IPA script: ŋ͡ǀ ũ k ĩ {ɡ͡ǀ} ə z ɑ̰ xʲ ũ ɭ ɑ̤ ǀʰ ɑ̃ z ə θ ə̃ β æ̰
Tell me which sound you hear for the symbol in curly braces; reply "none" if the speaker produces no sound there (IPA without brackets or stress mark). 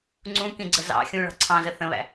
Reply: ɡ͡ǀ